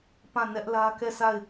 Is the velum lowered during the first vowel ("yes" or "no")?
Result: yes